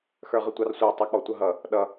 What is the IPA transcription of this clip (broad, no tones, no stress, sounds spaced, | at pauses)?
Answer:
x ə˞ ʁ ə tʷ ɑ r sʷ ɑ tˤ ə˞ k͡p ɔ tʷ ʌ ɦ ʌ | ɗ ʌ